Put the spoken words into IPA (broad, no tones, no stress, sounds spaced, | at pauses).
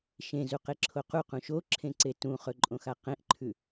ʃ ẽ z u q e ǁʰ o q u q ũ ʃ o ǁʰ ẽ ǀ e t ũ χ ɵ ǃʼ õ x a q ẽ ʔ ǃʰ ʉ